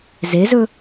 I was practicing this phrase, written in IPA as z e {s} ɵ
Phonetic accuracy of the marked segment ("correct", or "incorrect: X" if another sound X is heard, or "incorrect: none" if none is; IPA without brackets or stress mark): incorrect: z